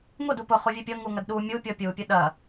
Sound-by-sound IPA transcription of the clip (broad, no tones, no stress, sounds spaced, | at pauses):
ŋ o d u p ʊ χ u vʲ ɨ pʲ ɤ ŋ u ŋ ɐ d ɗ u mʲ u pʲ ɔ pʲ u pʲ ʊ ɗ ɐ